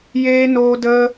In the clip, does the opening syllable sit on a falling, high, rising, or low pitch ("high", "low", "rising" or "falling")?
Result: high